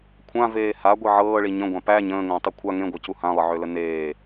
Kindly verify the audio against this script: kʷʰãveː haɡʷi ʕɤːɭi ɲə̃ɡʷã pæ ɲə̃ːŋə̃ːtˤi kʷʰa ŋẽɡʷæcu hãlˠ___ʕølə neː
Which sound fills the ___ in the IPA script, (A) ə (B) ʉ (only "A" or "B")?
A